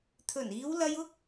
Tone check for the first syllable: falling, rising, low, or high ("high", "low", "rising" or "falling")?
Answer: low